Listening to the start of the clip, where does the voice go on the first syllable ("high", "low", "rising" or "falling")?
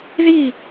falling